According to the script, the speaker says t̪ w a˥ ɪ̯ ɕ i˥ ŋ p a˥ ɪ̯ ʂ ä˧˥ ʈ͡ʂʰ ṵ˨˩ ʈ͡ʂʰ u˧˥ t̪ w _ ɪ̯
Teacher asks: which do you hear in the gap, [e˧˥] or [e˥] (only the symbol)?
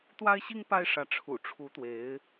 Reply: e˧˥